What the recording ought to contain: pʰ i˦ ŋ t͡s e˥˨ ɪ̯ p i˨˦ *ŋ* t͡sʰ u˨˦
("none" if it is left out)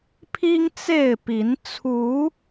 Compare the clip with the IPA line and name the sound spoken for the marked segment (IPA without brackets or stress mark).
n